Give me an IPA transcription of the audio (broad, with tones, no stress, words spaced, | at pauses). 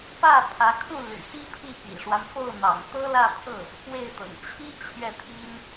pä˥˩ pʰä˧˥kʰu˥˩ ly̰˨˩pi˥pʰi˥˩ pḭ˨˩ʂwa˦nfo˥˩ʊ̯ n̪ɑ̰˨˩ŋt̪ɤ˥lä˥˧pʰɤ˥˩ | pwe˥˩ɪ̯t̪ɤ̰˨˩ŋ t͡ɕʰi˥ t͡ɕʰɥɛ˥˩t̪ʰi˥n